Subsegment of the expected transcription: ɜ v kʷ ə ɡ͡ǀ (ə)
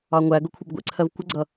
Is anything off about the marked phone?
yes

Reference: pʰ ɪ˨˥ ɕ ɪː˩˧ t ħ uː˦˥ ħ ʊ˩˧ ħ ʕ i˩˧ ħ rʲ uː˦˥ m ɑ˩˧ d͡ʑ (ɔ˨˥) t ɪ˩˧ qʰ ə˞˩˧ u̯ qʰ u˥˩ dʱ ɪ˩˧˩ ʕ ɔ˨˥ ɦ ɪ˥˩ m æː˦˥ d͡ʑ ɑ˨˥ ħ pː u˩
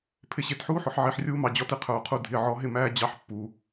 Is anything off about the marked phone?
no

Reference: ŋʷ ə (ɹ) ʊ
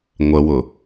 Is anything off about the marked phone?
yes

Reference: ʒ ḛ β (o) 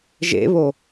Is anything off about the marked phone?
no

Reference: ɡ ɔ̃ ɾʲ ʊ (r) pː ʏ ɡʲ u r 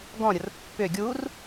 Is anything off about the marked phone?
no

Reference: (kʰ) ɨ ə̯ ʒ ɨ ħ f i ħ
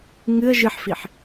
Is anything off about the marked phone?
yes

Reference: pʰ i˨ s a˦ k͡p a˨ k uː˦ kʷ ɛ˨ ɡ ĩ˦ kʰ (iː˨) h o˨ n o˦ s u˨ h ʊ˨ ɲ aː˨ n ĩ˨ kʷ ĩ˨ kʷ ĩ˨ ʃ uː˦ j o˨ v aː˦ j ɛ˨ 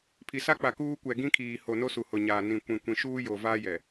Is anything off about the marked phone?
no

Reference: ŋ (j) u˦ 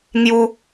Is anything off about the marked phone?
no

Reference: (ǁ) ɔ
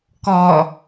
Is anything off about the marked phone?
yes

